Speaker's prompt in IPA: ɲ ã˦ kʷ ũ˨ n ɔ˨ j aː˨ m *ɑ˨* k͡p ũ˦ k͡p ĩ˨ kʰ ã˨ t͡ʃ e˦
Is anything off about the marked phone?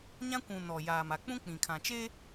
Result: yes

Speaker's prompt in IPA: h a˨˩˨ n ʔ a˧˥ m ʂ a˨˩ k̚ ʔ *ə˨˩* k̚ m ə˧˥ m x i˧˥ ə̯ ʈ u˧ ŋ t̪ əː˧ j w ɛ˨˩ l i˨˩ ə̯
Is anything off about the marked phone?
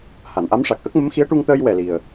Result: yes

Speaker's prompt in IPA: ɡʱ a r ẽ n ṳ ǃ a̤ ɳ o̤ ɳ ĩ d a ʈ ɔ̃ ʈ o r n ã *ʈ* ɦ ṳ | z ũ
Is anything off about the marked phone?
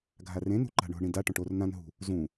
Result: yes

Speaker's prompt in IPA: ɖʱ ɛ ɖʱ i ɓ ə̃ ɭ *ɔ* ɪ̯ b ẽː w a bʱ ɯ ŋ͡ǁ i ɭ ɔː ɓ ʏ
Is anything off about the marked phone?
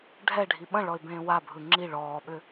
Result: no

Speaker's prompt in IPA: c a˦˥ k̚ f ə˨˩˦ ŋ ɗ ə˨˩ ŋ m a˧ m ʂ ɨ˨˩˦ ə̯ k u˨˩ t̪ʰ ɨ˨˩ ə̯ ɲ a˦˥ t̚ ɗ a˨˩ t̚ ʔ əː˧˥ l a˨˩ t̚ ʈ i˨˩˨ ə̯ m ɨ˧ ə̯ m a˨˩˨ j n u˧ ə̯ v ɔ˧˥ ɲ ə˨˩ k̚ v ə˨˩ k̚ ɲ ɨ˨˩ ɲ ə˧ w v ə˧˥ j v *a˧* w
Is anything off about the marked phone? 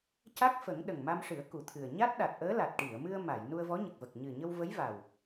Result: yes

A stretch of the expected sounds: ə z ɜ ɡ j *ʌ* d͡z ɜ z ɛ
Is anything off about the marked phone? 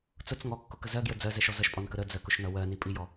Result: yes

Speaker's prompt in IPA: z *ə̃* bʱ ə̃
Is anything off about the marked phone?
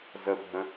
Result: yes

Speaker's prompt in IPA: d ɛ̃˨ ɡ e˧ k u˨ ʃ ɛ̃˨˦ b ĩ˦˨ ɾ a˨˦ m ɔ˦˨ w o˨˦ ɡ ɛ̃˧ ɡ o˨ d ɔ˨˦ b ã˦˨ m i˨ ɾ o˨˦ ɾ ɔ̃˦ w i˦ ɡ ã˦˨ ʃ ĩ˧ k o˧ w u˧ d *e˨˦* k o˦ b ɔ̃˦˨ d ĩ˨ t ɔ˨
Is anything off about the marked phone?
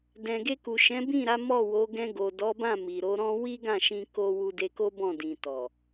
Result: yes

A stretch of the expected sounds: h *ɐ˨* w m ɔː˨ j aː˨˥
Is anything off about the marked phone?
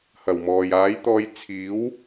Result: yes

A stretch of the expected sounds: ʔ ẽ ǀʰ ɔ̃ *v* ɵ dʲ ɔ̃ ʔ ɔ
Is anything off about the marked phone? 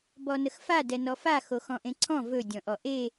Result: no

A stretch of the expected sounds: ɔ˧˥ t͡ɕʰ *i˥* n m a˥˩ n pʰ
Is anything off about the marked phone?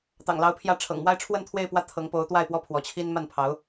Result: no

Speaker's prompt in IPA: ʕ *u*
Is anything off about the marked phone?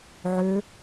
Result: yes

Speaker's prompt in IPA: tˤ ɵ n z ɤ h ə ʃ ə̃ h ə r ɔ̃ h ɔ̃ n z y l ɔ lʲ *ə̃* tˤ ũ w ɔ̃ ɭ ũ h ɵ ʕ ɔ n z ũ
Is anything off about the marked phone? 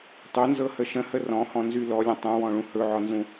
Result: no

